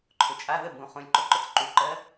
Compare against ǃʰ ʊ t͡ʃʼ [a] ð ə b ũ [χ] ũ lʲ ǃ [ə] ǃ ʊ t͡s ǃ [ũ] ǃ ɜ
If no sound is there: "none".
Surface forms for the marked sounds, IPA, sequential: a, χ, ʊ, u

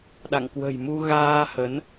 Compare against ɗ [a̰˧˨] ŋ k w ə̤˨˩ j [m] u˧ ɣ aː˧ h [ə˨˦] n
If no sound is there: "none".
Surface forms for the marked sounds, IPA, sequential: a̰˧˨, m, ə˨˦

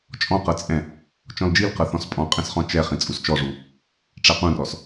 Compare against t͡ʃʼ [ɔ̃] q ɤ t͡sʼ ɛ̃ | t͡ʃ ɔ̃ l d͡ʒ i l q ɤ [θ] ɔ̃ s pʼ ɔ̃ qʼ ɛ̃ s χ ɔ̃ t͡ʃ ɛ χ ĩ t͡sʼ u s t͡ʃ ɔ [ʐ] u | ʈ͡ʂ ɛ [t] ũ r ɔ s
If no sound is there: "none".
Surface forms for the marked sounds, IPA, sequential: ɔ̃, θ, ʐ, q

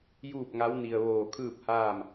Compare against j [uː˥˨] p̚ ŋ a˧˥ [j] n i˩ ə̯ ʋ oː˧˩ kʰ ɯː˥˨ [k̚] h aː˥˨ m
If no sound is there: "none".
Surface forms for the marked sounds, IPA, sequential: uː˥˨, w, p̚

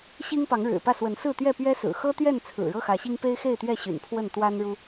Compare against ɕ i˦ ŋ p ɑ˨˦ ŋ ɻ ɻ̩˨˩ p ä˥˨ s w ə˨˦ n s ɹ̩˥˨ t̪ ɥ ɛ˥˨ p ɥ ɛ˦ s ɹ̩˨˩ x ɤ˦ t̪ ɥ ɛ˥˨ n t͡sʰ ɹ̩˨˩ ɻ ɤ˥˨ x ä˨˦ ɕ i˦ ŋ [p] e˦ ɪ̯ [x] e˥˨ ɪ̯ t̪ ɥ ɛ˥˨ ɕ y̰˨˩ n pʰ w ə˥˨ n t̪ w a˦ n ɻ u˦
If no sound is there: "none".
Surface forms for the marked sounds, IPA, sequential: p, x

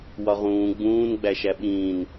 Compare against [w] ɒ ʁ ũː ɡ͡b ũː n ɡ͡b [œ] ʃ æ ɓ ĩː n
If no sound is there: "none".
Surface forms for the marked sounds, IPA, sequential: w, æ

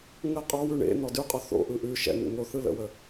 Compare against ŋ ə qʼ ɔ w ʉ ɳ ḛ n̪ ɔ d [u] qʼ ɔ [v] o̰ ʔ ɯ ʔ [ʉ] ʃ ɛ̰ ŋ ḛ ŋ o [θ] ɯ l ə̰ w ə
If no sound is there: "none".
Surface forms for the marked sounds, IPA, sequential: ʉ, θ, ʉ, θ

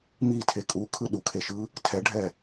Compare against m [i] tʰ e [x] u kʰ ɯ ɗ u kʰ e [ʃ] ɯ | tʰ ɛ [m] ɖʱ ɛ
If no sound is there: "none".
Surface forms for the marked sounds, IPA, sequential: i, kʼ, ʃ, none

